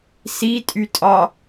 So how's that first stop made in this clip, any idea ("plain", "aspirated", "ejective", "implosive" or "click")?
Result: ejective